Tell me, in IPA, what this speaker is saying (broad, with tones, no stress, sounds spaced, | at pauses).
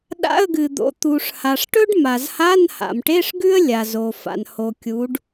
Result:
ɗ a̰˧˥˧ ə̯ ɡ ɨ˩ d̪ o̰˩˧ t̪ u˩ ʂ h a˩ ʂ ʈ ɵ˥ ɖ m a˩ z h a˧˥˧ n h a̰˩ m ʈ e˧˥˧ ʂ ɡ ʉ˥ ə̯ lʲ a˩ z o˩ f a̰˩ n h o˩ kʲ u˩˧ ɖ